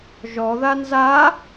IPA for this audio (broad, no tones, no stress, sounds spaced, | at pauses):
ʒ ɔ ð a n z a